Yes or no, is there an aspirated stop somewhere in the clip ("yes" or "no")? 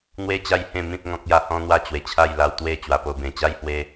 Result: yes